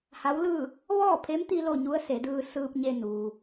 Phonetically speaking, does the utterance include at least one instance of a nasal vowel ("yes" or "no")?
no